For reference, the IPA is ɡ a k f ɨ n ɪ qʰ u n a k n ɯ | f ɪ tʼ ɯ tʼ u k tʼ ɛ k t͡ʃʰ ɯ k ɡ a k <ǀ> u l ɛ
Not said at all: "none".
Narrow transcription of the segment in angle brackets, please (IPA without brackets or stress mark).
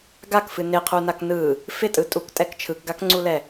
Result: ŋ͡ǀ